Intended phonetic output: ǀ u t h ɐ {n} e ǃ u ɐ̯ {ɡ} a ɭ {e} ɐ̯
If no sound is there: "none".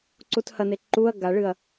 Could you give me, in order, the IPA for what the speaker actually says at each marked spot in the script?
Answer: n, ɡ, ɨ

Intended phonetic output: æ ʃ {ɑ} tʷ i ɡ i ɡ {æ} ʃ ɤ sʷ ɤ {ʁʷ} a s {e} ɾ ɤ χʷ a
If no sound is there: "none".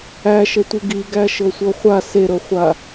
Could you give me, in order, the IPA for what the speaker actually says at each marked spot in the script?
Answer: ə, æ, χʷ, e

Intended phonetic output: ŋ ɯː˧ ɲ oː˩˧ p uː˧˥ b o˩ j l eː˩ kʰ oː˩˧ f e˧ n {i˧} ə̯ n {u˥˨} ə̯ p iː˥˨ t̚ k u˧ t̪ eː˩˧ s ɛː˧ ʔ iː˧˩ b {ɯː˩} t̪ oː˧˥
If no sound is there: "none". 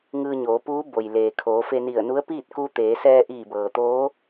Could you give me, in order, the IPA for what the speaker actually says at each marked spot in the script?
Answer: i˧˩, u˧˥, ɤː˩

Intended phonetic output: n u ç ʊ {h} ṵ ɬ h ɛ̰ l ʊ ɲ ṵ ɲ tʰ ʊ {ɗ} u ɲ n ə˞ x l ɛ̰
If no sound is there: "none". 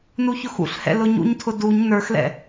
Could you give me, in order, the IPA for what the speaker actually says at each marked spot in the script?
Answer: x, d

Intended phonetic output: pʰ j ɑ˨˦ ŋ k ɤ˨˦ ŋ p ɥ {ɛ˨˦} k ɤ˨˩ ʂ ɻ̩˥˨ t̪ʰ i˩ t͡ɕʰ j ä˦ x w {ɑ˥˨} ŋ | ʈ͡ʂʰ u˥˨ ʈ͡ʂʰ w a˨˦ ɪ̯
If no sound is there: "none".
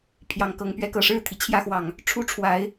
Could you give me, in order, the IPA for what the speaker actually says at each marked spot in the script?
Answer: ɛ˨˦, ɑ˨˩

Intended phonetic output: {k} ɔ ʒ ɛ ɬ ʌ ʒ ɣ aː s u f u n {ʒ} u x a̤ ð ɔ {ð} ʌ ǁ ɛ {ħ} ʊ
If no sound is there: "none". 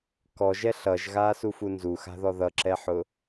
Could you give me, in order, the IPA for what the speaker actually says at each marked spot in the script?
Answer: k, z, ð, ħ

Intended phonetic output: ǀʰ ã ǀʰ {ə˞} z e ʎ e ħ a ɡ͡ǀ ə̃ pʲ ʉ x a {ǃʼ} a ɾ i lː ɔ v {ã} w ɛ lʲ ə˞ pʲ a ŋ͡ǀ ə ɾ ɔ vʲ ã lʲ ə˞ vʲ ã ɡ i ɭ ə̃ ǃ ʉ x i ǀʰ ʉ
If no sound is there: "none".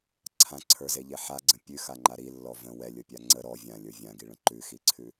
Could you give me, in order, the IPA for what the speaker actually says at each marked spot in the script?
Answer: ə˞, ŋ͡ǃ, ə̃

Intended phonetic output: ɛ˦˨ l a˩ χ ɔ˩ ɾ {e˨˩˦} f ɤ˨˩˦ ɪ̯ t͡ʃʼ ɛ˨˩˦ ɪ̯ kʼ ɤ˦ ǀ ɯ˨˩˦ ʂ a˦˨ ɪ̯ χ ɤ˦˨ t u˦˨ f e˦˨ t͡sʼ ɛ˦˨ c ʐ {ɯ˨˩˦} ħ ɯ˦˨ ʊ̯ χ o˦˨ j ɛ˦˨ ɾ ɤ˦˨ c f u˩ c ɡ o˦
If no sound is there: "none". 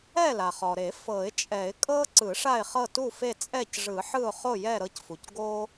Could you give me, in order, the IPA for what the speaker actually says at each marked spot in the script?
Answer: e˨˩˦, ɯ˨˩˦

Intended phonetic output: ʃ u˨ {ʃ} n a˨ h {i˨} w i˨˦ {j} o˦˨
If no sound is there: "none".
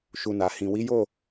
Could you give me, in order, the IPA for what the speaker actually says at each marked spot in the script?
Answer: none, ĩ˨, j

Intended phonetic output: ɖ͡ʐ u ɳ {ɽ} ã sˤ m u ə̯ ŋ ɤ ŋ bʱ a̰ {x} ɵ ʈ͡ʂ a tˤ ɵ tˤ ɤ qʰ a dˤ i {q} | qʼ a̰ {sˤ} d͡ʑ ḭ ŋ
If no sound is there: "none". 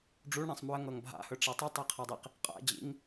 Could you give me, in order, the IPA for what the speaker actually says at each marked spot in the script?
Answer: ɽ, h, q, none

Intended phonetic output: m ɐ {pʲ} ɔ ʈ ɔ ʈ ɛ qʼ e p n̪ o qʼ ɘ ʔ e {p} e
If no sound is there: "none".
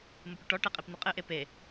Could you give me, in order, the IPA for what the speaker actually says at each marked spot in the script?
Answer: pʲ, p

